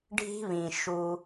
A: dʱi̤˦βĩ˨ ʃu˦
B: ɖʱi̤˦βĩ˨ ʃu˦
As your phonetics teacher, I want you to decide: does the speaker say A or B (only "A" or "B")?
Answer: B